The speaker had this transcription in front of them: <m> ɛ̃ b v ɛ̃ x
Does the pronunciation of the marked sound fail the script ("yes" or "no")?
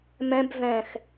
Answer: no